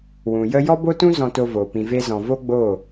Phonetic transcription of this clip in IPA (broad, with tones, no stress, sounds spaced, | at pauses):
w ũ˨ j ə˦ j ɔ˦ b o˦ t ũ˦ z ɔ̃˧ t o˧ v oː˨ p ĩ˨ v e˧ z ɔ̃˨ v o˦ ɡ͡b o˦˨